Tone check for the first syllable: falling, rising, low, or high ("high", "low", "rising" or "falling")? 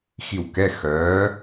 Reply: falling